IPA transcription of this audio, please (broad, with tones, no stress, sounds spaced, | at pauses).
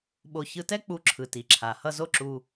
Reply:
ɓ o˧ ç ɯ˧ t ɛ˥ k͡p u˧ ǁʰ ɯ˩ t i˩ ǁʰ a˩ h ʌ˥ z o˥ ǁ u˧